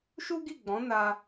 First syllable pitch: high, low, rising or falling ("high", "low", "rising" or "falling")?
high